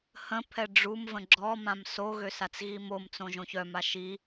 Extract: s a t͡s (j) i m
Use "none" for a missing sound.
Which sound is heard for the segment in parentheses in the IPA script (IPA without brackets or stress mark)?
ɣ